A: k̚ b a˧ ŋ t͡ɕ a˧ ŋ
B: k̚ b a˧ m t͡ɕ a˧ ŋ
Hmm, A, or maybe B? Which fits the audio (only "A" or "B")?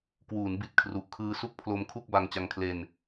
A